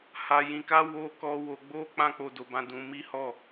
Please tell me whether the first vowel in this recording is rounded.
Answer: no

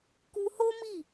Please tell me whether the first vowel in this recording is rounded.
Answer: yes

